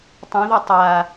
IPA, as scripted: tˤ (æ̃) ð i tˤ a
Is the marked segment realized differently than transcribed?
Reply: yes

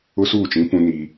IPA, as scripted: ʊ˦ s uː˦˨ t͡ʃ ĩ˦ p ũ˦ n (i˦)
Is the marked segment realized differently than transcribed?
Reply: yes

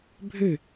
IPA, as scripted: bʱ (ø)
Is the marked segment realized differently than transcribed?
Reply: no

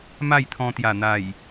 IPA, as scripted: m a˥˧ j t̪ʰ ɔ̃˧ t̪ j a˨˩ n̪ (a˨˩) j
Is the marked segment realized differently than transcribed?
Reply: no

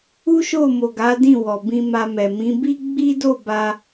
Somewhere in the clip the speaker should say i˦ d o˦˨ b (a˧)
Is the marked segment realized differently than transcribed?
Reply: no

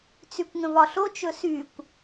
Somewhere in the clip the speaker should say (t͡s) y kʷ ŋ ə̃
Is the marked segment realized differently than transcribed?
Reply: no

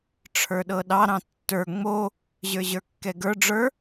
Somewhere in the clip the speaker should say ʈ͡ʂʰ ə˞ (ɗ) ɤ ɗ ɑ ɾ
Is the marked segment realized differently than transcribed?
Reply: no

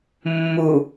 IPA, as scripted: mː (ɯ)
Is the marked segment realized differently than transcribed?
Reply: yes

